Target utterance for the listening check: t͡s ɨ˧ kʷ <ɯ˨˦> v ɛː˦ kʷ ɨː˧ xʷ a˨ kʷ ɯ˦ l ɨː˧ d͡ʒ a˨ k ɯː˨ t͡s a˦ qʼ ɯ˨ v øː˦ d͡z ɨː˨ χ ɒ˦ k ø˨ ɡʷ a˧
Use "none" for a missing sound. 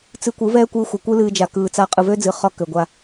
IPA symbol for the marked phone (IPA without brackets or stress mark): ɯ˨˦